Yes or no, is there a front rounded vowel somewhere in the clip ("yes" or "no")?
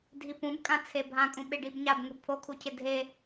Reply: no